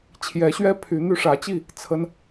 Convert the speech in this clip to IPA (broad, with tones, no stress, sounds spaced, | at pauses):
t͡ɕʰ j ɛ˨˦ ɕ ɥ ɛ˦ pʰ y˨˦ n̪ y˧ ʂ ä˨˦ t͡ɕ i˥˨ | t͡sʰ ə˦ n